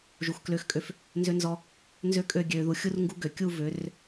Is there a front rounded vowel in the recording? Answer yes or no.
yes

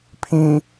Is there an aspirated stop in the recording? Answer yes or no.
yes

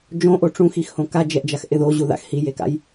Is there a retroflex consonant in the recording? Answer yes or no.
yes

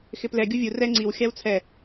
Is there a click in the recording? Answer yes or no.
yes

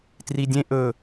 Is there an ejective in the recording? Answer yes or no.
no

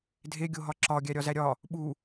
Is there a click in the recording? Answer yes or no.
yes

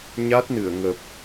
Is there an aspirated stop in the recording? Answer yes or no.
no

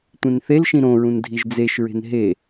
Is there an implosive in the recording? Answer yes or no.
no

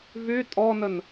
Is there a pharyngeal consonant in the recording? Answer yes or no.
no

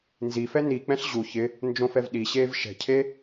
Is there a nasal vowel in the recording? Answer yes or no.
yes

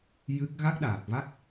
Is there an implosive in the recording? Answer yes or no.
yes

